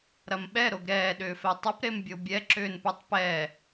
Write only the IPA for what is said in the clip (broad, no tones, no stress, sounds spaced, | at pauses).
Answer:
ɾ ɐ m ɓ ɛ ɾ o ɡ ɾ ɛː ɗ ʏː f ɛ tˤ o p ɾ e m bʲ o bʲ ɛ ǁ ʏː n p u tˤ p ɛ